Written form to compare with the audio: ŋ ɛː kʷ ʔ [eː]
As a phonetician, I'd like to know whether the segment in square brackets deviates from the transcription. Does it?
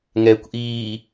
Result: yes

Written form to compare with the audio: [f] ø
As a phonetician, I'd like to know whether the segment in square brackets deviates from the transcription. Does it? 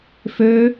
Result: no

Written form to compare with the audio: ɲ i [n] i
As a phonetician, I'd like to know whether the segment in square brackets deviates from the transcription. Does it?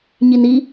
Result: no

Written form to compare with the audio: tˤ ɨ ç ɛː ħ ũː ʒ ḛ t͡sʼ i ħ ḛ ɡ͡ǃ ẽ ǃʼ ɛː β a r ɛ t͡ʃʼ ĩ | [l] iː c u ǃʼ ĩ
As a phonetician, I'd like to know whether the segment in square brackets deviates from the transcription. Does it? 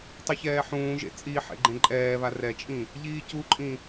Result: yes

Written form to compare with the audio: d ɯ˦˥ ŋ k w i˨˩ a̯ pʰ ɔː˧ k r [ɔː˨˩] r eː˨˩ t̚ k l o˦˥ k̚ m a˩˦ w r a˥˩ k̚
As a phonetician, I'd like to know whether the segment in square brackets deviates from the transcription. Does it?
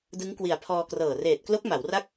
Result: yes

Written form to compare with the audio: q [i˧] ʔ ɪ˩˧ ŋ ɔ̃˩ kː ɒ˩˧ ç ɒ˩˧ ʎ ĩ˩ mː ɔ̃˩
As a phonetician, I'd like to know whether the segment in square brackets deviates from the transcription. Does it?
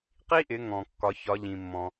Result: yes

